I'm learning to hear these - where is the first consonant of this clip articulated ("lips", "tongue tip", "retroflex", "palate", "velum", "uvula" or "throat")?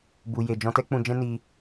lips